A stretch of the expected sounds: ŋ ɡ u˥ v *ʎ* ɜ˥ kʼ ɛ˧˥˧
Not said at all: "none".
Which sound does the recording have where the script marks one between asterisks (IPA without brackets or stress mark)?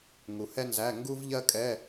ʎ